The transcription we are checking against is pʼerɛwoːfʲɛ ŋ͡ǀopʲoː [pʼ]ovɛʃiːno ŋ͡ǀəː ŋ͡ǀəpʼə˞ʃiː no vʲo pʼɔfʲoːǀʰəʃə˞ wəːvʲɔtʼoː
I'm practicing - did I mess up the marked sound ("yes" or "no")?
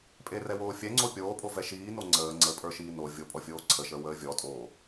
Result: no